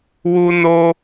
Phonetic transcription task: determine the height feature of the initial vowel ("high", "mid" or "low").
high